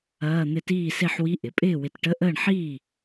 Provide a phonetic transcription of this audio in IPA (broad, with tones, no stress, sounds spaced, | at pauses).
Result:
ɐː˧˥˧ n̪ ɪ˥˨ t iː˥˨ s e˥˨ ħ w i˧˥˧ ʔ ɪ˩˧ pʼ ɪː˥˨ w ɪ˧˩ t ʈ ə˧˥˧ ʔ əː˥˨ ɳ ħ iː˥˨